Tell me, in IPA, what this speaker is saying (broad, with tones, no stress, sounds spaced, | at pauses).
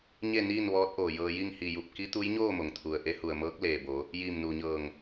ɲ e˥˨ n iː˥˨ n ʋ ɔː˧˥ t̚ ʔ oː˩ j ɤː˧ j i˥˨ ŋ h i˧˩ j u˧˩ p̚ k i˧˥ t̪ u˧˥ j ɲ oː˥˨ m o˩ ŋ t̪ʰ u˩ ə̯ ʔ e˧˥ h u˩ ə̯ m ɤː˧˥ k̚ l eː˩ b o˩˧ | j iː˧˩ m n uː˩ ɲ ɤː˧˩ ŋ